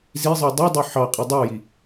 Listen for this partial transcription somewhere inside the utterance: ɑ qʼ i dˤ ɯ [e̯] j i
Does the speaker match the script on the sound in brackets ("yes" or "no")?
no